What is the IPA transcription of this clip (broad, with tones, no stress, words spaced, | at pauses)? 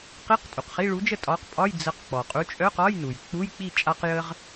qi˧˥˧qtʼu˩q χi˧˥˧ɭu˨˥d͡ʒə˥˩ tʼɒ˨˥qpʼɒ˧˥˧j d͡zə˨˥q k͡pɔ˩qʼu˨˥ t͡ʃʼœ˧˥˧qɒ˧˥˧j nu˩j k͡pu˧˥˧jk͡pi˥˩ t͡ʃʼa˧qjə˧ʁ